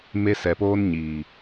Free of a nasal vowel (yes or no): yes